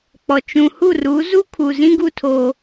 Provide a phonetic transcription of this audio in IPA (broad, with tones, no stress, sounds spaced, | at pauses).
k͡p ɔ˨ t͡ʃ ũ˨ h u˦˨ r u˨˦ z u˦ kʰ u˨ z ĩ˦ ɡ u˦ tʰ o˦